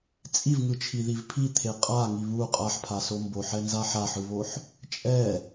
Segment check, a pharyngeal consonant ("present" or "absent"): present